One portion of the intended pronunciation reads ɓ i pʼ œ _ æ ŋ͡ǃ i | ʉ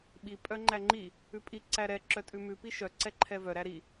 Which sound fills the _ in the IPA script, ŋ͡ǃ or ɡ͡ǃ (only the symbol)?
ŋ͡ǃ